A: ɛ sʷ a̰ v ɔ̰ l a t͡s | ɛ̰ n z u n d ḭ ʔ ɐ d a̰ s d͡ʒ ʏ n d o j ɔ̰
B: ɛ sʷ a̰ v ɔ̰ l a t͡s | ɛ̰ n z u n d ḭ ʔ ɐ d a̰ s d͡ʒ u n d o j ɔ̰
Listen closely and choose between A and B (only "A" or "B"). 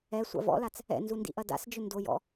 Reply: A